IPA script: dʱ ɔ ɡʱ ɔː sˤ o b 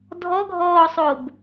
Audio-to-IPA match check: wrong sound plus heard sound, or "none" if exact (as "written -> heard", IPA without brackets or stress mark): none